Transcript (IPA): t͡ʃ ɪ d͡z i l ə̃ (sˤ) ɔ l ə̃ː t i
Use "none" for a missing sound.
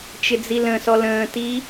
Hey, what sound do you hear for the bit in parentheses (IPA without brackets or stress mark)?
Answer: s